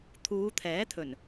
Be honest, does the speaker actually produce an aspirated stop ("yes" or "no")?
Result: yes